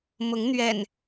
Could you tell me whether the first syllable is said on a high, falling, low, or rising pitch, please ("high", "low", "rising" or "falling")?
rising